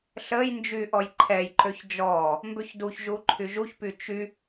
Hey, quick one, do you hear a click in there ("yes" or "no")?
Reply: yes